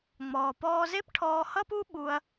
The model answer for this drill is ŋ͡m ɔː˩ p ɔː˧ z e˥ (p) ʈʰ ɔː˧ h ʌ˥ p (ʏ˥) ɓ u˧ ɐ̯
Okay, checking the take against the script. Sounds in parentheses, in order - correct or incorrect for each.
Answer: correct, incorrect: u˥

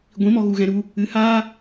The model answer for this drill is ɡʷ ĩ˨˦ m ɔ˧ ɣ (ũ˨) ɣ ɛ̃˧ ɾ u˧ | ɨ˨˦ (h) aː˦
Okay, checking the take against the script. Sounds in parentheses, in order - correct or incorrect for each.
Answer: incorrect: u˨, correct

